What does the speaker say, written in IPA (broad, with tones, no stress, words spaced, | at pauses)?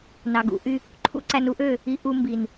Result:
nɑ˨ɡṵ˨˦ ʔy˧ | ǃʰṵ˦ǀæ˧nu˦ʔø˦˨ | i˧ ʔu˧ mbi˨n